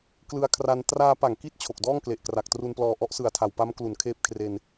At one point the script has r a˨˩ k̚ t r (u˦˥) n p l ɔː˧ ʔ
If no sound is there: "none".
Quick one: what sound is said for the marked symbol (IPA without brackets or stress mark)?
u˧